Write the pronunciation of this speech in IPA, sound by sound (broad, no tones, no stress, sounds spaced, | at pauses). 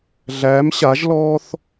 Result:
ɮ æ m ɕ a ʒ l ɔː θ